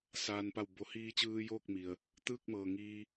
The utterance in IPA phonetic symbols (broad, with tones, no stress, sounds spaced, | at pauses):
s aː˩ n p a˧˩ w b o˩˧ h iː˧ t͡ɕ ɯː˧ j oː˥˨ k̚ m i˩ ə̯ | t̪ ɯː˥˨ k̚ m ɤː˩ ŋ iː˧